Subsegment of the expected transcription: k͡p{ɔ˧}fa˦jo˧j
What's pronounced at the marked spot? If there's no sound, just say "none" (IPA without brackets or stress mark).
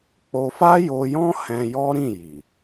o˧